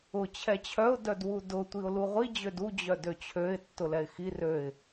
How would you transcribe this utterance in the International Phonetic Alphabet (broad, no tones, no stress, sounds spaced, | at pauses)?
ʊ t͡ɕʰ ɛ t͡ɕʰ œ ʊ̯ d œ d w u d ʊ tʷ i ʊ̯ l u ʁʷ i d͡ʑ ø d u d͡ʑ œ d ø t͡ɕʰ ø ɪ̯ tː ʊ l ɛ ɪ̯ x i r ø ɪ̯